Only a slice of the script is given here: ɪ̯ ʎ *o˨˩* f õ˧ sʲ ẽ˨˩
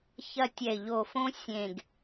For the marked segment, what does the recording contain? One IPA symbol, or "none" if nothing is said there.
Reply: o˨˩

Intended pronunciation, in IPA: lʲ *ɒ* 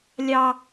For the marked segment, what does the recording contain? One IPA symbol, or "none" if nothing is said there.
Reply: ɑ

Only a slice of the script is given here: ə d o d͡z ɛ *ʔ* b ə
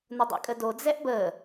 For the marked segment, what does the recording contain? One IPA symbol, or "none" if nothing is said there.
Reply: ʔ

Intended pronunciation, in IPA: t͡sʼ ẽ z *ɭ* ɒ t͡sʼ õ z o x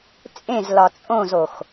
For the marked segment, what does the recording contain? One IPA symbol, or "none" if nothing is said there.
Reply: l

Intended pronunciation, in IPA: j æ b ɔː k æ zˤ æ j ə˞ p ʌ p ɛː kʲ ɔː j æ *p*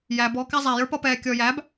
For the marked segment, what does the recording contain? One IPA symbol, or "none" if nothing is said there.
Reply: b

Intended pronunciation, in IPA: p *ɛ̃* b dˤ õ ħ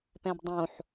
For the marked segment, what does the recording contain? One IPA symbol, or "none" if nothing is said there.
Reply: ɛ̃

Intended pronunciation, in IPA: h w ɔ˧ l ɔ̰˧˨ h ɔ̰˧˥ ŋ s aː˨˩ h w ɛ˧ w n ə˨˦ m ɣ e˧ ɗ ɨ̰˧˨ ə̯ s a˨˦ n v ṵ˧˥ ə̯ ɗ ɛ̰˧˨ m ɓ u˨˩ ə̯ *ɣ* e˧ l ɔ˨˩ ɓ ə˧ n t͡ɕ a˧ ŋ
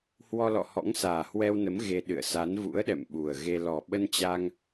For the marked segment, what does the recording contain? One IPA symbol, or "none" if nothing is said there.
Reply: ɣ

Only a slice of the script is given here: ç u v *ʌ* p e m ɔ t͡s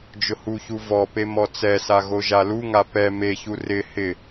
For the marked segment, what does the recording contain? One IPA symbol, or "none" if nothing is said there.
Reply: ɔ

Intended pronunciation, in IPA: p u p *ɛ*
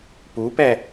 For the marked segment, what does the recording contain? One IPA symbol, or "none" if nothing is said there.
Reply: ɛ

